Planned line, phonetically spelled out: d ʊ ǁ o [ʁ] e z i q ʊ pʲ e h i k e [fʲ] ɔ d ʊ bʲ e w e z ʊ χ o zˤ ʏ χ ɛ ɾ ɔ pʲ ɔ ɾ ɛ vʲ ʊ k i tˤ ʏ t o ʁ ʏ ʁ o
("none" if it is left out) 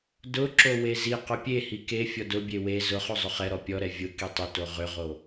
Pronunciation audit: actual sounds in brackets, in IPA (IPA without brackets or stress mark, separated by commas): w, fʲ